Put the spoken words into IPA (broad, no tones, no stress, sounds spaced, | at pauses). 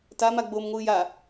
t a m a ɡ͡b oː m ŋʷ ɯː j a